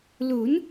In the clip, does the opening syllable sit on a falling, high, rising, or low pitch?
rising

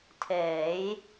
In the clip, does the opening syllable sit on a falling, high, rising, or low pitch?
rising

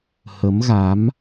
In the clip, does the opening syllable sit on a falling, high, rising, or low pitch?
rising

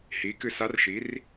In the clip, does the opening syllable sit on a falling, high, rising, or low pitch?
rising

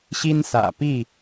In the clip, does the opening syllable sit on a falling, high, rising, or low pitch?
high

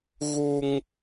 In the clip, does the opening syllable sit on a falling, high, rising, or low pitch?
high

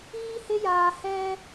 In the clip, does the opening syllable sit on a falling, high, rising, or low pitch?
high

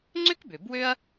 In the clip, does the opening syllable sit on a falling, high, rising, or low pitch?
high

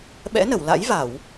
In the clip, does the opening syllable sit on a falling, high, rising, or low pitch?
rising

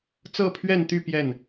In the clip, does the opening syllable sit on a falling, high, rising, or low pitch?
falling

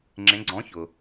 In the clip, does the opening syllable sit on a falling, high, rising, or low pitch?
rising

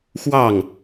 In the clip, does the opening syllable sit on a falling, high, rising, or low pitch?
falling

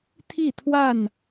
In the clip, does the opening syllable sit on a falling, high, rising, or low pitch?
falling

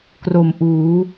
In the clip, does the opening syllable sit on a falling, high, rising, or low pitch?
low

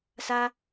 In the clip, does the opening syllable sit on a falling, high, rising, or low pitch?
high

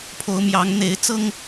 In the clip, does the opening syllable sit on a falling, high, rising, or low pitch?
rising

